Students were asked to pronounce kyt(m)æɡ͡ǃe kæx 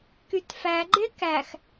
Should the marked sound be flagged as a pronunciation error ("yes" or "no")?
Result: yes